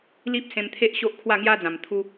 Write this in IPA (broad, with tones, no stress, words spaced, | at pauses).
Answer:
li˦p̚sẽ˧mt̪ʰe˦ʔ ɕo˦ʔkʰwa˥˧ŋja˦d͡zã˨˩m t̪ʰu˧